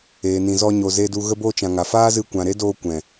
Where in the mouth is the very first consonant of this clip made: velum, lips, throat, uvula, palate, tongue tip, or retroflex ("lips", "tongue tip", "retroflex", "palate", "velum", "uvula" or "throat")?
tongue tip